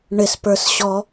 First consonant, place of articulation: retroflex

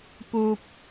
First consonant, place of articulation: labial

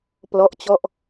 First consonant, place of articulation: labial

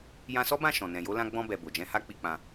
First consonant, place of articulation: palatal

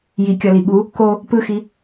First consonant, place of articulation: palatal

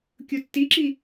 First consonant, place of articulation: velar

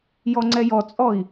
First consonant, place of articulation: palatal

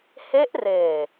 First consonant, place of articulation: glottal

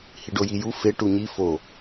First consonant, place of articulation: glottal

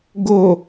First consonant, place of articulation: velar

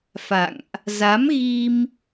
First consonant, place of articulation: labial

